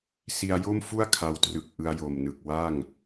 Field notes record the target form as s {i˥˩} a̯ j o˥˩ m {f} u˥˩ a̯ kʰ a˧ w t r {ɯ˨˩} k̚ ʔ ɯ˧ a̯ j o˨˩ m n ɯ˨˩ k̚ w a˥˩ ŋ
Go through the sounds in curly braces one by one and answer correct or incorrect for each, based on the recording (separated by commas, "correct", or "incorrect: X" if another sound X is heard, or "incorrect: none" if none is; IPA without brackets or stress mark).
incorrect: i˧, correct, correct